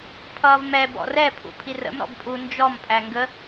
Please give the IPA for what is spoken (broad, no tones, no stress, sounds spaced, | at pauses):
pʰ ʌː v m ɛ b ɔ̰ r ɛ pʰ ṵ pʰ i r ə̰ m ɾ ɔ̰ b pʼ u n d͡ʒ ɔ m pʼ æ ŋ ɡ ə